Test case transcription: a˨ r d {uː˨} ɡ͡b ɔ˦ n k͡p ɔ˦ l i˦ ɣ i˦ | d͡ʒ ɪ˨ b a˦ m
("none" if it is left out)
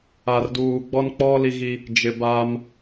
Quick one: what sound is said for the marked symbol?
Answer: uː˨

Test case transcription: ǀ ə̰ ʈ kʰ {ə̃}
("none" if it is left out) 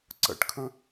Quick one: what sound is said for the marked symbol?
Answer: ə̃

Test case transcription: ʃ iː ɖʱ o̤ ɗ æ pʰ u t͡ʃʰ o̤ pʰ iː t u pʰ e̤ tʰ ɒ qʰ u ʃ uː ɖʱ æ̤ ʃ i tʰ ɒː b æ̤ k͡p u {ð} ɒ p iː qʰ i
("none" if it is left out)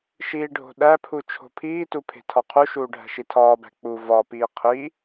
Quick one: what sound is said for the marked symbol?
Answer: v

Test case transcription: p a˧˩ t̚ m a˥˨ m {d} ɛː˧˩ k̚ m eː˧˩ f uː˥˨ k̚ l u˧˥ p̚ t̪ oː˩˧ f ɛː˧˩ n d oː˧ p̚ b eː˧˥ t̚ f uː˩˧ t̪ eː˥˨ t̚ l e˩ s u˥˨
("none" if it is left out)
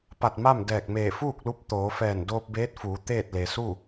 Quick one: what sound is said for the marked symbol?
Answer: d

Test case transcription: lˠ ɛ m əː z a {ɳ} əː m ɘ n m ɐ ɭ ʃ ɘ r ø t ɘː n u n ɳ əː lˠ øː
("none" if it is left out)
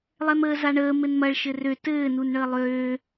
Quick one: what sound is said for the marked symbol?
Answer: ɳ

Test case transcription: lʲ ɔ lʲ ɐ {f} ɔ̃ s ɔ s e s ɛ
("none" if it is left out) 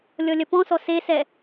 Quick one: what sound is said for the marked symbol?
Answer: p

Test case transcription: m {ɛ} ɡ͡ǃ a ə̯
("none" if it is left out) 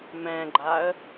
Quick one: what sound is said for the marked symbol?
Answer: ɛ̃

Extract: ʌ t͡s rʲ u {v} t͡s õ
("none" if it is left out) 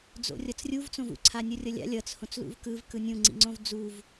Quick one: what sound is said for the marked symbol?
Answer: v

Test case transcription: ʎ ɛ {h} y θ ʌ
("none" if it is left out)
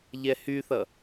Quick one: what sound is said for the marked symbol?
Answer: h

